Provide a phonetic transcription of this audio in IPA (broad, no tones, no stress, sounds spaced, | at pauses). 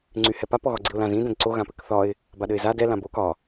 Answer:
ŋ͡ǀ y h ɛ p a p ɔ ɣ ɒ ɡ͡ǀ i ʊ̯ l ã z ĩ d ɛ̃ d ǀ o ɣ ã p ɘ k θ ɒ ɪ̯ | b a ɗ ɘ ɪ̯ z a d ɛ l ã b o k ɒ